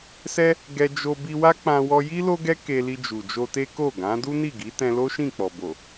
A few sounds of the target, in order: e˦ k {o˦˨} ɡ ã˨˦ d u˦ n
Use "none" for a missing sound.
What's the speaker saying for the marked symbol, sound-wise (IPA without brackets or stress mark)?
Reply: o˦˨